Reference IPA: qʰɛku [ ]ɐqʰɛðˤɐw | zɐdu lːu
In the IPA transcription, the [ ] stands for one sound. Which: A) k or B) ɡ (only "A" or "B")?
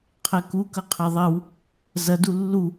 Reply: A